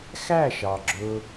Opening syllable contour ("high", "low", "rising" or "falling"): falling